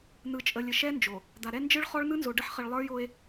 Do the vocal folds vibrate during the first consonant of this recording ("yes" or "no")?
yes